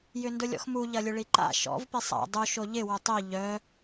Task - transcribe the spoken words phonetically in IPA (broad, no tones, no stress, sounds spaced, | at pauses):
j ʏ n d ʊ lʲ ɔ̰ x m u ʎ ɐ lʲ ʊ ɭ i ǃ a̰ ʃ ɔ̰ v p i sˤ a̰ dˤ u ʃ o ʎ ɪ w ʊ tˤ i ʎ œ